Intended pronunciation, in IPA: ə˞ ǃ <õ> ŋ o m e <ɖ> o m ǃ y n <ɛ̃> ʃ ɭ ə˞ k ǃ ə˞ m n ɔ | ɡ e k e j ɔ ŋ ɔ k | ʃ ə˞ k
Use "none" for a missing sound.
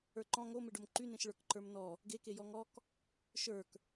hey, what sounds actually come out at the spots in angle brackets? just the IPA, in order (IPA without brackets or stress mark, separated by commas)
ɔ̃, ɖ, ẽ